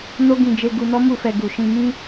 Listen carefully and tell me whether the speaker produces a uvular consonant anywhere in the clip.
no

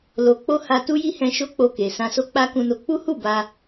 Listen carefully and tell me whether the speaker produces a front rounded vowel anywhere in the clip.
no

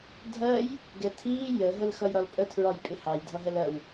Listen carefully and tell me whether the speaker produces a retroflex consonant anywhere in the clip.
no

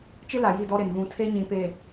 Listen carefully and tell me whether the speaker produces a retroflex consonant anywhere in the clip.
no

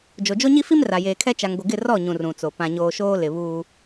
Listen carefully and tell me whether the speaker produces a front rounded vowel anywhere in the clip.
no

